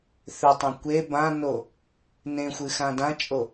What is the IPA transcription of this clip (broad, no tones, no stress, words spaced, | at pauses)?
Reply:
θøtˤã kʷe bãno | nẽxʷɨ xãdãt͡ʃʼo